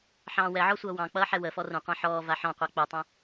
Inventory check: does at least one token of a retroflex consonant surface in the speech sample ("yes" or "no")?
no